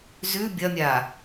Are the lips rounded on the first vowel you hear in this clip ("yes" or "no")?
yes